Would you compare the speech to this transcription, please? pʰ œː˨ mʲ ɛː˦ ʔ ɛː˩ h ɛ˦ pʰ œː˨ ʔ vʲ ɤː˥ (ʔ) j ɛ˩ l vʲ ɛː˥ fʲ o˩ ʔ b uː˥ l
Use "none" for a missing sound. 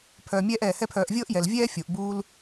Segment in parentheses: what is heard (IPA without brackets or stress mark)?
ʔ